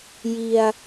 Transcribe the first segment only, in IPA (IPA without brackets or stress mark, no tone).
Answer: j